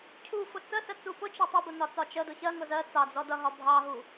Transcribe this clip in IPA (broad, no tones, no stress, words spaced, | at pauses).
cʰufʊ t͡səsə t͡supʊt͡ʃʌ tˤʌbʊ nɒt͡sɒt͡ʃədʊ çɜŋʊ zɜ t͡sɑd͡zɔ dʌɦɒ bʱɑɦu